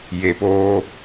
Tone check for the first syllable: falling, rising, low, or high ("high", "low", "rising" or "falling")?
low